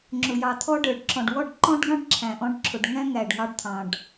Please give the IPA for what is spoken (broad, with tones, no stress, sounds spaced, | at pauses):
ŋ͡ǁ ʊ˨ j ɑ˨ t̪ʰ ɔ˦ ɖ ə˞˨ ɖ ǁ ɔ̃˨ ɖ w ɔ˦˨ ɖ ǃ ɔ̃˦ ɖ ɡ ɑ̃˦ ɖ ǁʰ æ̃˨ ʔ ɔ̃˦ ɖ ǁʰ ʊ˨ ɖ ŋ æ̃˦ ŋ æ˨ ɖ ŋ ɑ˦ ɖ t̪ʰ ɑ̃˨ ɖ